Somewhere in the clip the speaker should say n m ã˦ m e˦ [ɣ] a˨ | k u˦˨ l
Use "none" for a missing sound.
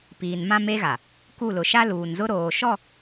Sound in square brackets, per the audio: ɣ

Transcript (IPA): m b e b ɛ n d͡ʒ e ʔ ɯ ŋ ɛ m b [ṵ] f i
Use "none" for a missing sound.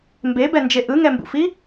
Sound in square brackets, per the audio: ṵ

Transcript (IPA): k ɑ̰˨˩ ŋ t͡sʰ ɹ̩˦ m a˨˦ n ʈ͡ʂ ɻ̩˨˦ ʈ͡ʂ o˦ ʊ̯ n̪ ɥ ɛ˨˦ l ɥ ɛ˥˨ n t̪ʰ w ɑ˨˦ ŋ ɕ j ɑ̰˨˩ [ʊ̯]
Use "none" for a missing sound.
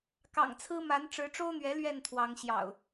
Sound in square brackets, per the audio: ʊ̯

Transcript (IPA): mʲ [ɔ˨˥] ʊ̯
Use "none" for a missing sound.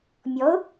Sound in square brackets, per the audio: ɔ˨˥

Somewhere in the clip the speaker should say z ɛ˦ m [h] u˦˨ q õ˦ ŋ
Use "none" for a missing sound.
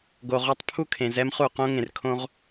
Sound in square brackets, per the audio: χ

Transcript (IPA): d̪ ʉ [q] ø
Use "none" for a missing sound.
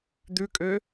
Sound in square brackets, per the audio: kʼ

